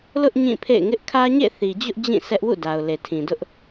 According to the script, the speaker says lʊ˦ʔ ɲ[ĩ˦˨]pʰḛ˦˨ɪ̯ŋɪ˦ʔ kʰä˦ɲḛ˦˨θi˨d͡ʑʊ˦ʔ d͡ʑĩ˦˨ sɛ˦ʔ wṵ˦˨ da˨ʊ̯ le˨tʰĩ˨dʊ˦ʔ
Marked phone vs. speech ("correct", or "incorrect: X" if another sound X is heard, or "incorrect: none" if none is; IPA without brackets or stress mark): correct